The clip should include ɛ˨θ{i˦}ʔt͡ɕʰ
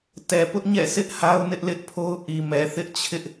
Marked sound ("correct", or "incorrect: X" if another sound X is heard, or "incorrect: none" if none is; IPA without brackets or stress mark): incorrect: ɪ˦